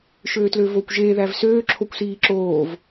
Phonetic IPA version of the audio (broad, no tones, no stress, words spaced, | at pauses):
ʃøːtløːvoːkʷʒeː ðævsøː ǁʰokʷsiːǁoːv